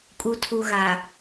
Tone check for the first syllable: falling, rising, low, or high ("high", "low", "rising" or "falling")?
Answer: low